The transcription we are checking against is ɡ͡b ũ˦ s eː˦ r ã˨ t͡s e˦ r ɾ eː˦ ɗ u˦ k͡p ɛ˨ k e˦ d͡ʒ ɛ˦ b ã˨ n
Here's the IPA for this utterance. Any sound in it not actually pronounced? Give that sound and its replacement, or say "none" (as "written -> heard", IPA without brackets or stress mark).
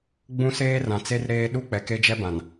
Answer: none